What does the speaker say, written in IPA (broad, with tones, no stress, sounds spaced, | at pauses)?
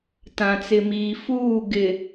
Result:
t ã˨ t͡s ɪ˨ m iː˨ f uː˦˨ ɡ ɪ˨